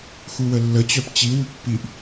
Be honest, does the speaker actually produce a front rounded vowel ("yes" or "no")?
yes